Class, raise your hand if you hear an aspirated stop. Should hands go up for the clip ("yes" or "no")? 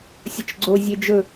no